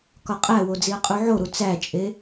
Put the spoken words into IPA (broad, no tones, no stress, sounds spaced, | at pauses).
k ɒ qʼ æ w o d͡z i ɐ̯ qʼ u ʕ o ɾ u t͡s æ t͡ʃʼ e